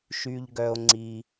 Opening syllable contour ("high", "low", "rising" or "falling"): low